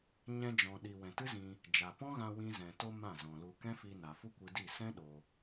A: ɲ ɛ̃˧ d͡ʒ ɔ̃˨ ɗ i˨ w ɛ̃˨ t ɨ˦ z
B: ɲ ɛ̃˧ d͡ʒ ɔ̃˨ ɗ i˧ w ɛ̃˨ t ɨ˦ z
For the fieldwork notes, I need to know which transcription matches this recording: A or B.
A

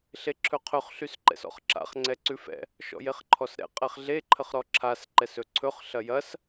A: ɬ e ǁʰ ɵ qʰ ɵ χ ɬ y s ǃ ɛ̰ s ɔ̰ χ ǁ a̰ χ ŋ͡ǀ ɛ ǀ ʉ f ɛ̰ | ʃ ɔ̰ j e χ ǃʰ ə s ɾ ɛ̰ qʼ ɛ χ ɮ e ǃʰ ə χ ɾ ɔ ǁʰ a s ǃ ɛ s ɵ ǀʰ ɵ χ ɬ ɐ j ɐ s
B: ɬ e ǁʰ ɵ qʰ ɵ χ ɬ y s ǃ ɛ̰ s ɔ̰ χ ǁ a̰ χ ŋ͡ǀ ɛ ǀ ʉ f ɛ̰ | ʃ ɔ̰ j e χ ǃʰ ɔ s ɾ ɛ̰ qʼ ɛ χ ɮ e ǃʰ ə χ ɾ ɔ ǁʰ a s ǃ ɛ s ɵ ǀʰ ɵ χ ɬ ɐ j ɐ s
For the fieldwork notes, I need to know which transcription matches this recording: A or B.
B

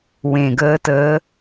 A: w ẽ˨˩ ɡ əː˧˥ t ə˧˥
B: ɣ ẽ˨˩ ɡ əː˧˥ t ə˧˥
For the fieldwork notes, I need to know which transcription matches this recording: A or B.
A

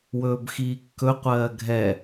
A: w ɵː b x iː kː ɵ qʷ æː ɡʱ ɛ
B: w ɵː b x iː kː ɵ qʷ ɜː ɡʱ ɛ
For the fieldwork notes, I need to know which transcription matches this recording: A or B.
B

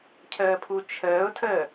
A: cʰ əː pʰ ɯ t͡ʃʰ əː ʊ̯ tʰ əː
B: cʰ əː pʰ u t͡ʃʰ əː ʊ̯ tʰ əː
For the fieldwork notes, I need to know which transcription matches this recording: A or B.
B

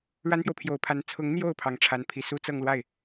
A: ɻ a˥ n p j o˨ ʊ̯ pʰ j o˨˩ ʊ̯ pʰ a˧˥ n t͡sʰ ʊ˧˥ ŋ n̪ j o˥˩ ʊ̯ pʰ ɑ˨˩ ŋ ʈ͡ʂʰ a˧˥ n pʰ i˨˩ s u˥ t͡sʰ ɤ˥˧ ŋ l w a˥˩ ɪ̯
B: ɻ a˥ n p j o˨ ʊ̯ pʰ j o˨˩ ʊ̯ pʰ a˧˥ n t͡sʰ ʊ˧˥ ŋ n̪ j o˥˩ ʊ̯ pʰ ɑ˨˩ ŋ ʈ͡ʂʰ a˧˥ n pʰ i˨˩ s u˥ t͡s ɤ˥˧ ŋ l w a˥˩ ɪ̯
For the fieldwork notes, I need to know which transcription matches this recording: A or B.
B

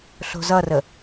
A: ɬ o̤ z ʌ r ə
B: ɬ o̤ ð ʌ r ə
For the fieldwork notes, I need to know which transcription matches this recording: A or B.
A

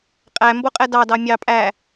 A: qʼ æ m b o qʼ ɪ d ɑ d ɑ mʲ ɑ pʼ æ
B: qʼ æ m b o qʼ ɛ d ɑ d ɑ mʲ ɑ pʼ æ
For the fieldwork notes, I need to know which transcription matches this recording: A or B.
B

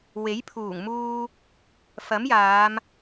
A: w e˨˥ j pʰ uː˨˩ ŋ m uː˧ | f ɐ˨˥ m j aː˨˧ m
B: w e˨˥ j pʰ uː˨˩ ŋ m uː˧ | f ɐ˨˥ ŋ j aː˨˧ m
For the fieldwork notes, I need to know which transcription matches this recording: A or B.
A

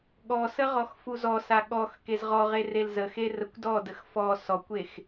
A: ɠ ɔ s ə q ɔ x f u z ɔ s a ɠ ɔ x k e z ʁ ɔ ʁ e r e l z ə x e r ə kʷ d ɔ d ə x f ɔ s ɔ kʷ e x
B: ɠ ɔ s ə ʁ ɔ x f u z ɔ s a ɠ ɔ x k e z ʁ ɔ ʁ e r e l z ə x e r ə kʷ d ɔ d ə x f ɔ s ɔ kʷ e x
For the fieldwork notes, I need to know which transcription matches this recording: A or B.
B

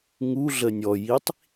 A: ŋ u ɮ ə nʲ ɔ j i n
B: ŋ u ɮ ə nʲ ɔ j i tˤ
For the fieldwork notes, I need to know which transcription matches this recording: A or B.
B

